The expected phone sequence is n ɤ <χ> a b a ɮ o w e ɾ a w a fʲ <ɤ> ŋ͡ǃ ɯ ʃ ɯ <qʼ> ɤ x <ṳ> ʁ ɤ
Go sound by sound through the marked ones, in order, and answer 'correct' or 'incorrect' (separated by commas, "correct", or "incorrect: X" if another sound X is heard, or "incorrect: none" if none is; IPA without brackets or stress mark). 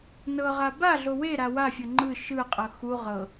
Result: incorrect: ʁ, correct, correct, incorrect: u